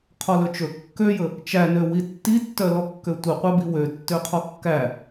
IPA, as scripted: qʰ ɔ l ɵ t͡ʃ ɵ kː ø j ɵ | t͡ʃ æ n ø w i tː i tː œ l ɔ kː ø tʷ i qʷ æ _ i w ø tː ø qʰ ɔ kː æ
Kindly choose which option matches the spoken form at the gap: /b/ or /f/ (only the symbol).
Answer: b